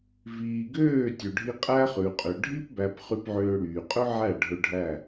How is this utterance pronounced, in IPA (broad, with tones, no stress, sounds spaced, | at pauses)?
v iː˨ ɡ øː˦˨ tʲ ʉ˨ ɖʱ i˧ qʼ æ˦ χ ʉ˨ qʼ ø˨ ɖʱ i˦ p b æ˧ p χ y˧ p ʕ øː˧ ɽ yː˨ qʼ ɵ˦ ʕ æ˦˨ ɖʱ ɵ˧ ɖʱ æ˦˨